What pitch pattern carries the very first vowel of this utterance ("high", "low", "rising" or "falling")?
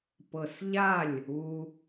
low